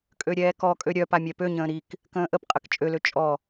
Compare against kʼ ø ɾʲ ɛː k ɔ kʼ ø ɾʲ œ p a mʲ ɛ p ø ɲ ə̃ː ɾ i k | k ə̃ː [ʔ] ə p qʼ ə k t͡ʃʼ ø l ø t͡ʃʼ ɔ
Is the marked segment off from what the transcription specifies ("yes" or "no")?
no